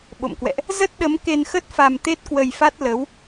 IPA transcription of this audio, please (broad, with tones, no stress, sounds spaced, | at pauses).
ɓ o̰˧˨ m k w ɛ̰˧˨ ʔ | z ə˦˥ t̚ ɗ ə˨˦ m k e˧ n x ə˦˥ t̚ f a˧ m t̪ e˦˥ t̚ k w ə˧ j f a˦˥ t̚ l ə˨˦ w